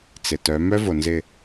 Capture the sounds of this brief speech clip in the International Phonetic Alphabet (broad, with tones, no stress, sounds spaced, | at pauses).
t͡s ɪ˨ t œ˨˦ m œ˦ v o˨ n z ɪ˨